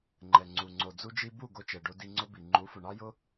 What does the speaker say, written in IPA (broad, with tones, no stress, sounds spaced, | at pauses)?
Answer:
ŋ͡ǃ ɛ˨ ŋ͡ǀ u˨ ŋ͡ǀ o˨ d͡z u˧ d͡ʒ i˧ b u˦˨ ɡ o˧ t͡ʃ ɛ˨ ɖ o˧ d i˧ ŋ͡ǀ ʊ˦ b i˨ ŋ͡ǃ u˨˦ f ʊ˨ ɳ ɑ˦ j ʊ˦